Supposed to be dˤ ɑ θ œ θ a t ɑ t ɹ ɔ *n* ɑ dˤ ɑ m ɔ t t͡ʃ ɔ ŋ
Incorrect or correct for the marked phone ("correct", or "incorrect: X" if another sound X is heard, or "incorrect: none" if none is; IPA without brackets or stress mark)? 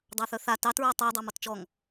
incorrect: tˤ